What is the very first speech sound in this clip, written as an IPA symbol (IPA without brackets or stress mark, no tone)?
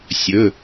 sʲ